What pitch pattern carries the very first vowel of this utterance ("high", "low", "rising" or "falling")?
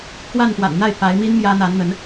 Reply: falling